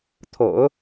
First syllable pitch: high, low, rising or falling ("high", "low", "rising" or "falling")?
low